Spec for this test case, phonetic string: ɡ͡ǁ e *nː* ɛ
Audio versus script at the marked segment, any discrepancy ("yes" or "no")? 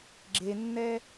no